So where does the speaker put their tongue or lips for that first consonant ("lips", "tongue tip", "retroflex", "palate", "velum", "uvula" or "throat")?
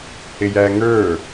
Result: throat